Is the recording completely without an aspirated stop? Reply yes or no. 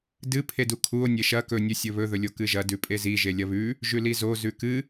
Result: no